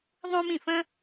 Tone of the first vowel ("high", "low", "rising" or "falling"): high